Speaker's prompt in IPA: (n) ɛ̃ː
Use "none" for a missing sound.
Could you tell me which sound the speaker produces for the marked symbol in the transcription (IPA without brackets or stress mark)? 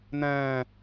n